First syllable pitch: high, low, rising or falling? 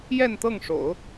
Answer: falling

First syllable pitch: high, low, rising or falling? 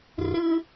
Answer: low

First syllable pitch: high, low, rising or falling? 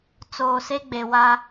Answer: low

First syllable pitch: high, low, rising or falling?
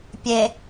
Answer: low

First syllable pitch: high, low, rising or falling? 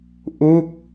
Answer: falling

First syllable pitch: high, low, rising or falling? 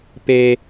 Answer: high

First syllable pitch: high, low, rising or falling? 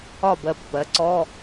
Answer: falling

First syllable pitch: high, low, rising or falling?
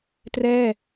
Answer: falling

